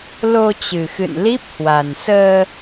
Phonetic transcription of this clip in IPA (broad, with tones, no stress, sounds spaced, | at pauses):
l o˧ t͡ɕ ɨ˨˩ x ɨ̰˧˨ n l i˦˥ p̚ h w a˨˩ n s əː˧